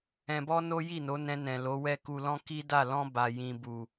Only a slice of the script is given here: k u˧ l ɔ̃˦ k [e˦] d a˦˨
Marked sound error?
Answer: yes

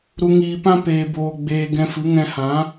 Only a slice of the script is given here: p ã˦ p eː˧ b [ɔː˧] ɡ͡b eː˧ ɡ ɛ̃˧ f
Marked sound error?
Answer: yes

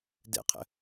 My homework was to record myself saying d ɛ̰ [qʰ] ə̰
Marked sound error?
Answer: no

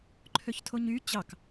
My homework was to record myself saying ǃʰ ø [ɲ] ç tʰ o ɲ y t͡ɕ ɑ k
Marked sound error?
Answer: yes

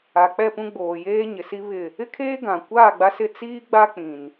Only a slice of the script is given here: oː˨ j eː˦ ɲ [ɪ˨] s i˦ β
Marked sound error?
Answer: no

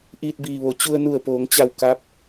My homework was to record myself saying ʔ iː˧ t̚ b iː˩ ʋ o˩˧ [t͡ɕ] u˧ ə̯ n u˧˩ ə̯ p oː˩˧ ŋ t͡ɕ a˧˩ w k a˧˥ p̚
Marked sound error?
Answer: no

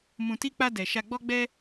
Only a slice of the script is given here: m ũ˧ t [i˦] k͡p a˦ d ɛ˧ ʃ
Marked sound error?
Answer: no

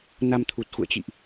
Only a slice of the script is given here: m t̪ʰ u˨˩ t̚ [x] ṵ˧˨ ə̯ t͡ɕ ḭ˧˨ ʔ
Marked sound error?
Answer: no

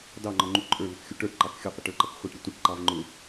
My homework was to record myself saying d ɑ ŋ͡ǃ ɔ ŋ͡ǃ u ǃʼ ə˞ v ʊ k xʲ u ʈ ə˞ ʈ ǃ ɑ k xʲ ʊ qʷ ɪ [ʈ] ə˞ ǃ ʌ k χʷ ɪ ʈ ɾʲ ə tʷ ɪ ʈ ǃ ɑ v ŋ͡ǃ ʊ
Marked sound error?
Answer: no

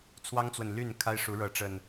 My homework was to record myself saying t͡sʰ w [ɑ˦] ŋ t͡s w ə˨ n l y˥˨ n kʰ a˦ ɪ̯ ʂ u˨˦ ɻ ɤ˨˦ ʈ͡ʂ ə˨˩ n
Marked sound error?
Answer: no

